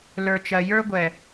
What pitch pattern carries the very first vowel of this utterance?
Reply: low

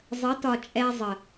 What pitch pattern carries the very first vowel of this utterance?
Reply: rising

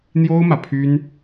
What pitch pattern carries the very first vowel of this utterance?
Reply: high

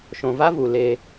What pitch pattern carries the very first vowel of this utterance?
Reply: low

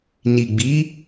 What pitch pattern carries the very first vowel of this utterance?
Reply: low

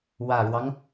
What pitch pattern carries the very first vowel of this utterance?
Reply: low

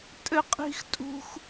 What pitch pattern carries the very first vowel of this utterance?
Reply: high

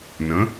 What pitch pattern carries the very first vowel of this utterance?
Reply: rising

